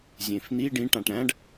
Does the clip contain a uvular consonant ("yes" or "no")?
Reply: no